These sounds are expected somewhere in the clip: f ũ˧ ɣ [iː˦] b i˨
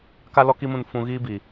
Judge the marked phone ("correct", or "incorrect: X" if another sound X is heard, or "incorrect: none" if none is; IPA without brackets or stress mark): correct